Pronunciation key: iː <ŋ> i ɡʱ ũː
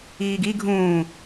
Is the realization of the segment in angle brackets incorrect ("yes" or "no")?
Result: yes